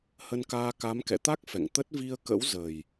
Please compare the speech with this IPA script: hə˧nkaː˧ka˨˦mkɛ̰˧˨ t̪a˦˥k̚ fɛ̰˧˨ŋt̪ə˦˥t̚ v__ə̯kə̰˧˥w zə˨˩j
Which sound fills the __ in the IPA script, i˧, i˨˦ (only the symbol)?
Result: i˧